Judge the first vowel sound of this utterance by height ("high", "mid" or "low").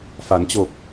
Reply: low